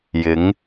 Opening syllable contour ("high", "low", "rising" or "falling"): rising